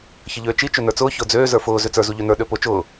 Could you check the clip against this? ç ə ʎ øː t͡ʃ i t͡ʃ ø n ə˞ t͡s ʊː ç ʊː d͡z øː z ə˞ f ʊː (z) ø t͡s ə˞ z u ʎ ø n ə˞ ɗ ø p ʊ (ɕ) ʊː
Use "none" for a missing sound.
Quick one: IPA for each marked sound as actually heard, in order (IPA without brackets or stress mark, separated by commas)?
z, t͡ʃ